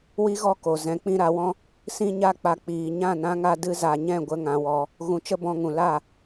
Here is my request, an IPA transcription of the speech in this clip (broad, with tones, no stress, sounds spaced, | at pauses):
w i˦ ɣ ɔ˦ k o˨ z ɛ̃˧ k͡p ĩ˦ ɾ a˨˦ w ɔ̃˦ | s ĩ˦ ɲ a˦ k͡p a˧ k͡p iː˨ ɲ ã˦˨ n ã˧ ŋ a˧ d ɨ˧ z a˨ ɲ ɛ̃˦˨ ɡʷ ə˦ ŋ ã˧ w ɔ˧ | ɣ ũ˧ t͡ʃ ə˦ b ɔ̃˧ ŋ ũ˨ l a˦˨